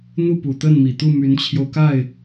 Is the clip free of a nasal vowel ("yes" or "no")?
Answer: yes